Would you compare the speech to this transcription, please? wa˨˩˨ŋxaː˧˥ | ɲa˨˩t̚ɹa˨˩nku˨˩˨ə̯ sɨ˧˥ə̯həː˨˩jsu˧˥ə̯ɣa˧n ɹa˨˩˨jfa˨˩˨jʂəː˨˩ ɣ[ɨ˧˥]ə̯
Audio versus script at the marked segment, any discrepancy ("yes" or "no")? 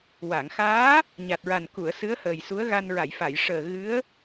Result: no